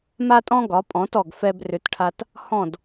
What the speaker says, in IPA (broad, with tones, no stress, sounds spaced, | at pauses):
m a˥ tʼ ɔ̃˥ ɡ ɒ˩˥ pʼ ɔ̃˩˥ t ɔ˩ ɡ f ɛ˧ b r ʏ˩˥ t ʈʰ a˧ t | h ɔ̃˥˩ d